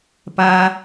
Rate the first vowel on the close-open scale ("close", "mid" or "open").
open